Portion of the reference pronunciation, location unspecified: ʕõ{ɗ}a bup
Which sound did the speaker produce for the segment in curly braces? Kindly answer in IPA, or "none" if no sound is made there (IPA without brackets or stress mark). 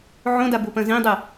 d